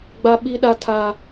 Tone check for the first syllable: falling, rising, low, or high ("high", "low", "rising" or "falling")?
high